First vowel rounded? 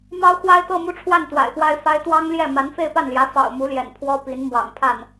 no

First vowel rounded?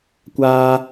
no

